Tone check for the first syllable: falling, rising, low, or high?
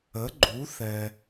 rising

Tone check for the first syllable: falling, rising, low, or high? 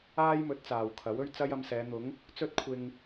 high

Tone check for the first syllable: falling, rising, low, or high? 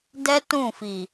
high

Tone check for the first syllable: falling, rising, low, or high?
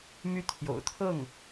falling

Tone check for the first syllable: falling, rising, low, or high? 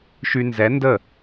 high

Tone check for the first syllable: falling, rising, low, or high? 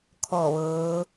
falling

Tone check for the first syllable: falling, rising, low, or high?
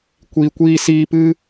low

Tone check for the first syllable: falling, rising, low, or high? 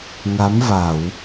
rising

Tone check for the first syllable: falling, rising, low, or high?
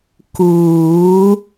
rising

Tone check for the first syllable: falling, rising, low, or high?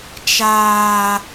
low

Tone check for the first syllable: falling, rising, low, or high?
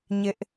high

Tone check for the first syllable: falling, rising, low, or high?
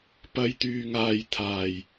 high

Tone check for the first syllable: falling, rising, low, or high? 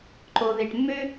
low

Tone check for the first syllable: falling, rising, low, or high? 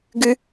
high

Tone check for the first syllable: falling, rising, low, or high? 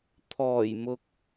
low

